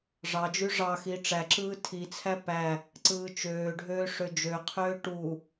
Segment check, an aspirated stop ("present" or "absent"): present